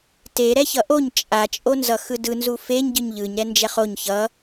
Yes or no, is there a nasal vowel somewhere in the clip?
no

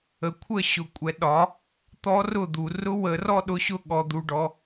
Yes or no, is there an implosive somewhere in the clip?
yes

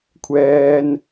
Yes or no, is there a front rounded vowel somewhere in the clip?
no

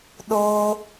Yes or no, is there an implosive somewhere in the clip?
yes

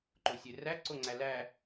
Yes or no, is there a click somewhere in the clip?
yes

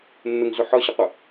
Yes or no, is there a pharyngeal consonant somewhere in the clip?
yes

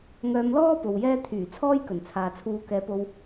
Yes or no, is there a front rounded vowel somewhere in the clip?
yes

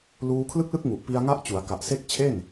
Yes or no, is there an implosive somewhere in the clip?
no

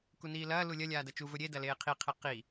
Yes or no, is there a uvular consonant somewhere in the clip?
yes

